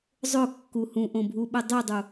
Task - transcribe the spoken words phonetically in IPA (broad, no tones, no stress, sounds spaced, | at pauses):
zˤ ʊ kː u h ũ ʔ õ bʱ u ɓ ɘ dˤ y dˤ u